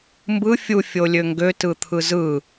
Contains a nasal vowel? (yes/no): no